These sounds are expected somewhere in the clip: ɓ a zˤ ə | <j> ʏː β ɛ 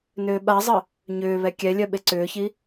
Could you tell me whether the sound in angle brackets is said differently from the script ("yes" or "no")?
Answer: yes